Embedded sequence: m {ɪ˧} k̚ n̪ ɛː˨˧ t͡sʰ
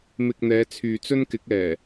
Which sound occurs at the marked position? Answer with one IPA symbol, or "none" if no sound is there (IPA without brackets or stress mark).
ɪ˧